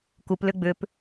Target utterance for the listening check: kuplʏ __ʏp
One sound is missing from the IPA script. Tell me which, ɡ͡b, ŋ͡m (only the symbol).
ɡ͡b